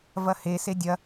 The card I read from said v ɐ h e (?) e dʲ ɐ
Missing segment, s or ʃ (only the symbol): s